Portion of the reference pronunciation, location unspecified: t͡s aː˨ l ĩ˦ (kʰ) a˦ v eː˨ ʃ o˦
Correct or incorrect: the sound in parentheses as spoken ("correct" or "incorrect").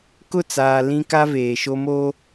incorrect